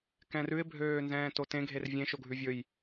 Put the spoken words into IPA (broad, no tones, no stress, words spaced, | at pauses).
kɛ̃rʉɪ̯ bʱøːnzɛ̃ːtotẽ ɡʱervʲẽ ʃoɡʱʉvʲɵj